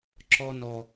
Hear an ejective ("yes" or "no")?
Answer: no